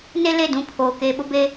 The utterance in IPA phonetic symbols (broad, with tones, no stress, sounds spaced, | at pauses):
n e˦ l e˦˨ d ũ˨˦ pʰ oː˨ k eː˨ ɓ ʊ˦ b e˦